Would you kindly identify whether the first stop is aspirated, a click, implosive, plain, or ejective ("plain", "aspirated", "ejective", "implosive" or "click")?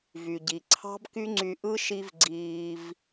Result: plain